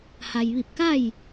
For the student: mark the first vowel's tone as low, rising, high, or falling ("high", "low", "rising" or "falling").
low